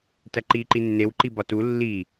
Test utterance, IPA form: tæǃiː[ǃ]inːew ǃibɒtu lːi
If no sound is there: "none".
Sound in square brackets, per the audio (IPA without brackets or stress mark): ǃ